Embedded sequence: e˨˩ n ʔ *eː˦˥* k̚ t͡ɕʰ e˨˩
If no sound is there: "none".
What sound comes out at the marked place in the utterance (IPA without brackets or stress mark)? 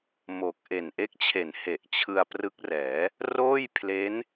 e˦˥